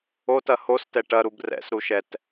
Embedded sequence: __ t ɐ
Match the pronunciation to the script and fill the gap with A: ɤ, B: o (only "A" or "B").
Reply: B